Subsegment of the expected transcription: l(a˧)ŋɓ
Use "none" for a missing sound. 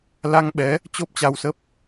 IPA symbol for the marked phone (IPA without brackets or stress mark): a˧